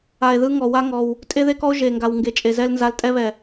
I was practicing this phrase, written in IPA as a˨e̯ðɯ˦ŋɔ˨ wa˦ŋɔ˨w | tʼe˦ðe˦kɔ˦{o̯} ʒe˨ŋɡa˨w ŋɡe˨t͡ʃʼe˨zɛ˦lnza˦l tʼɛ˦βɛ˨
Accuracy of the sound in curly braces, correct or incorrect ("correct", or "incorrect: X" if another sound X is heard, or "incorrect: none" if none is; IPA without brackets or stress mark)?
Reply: correct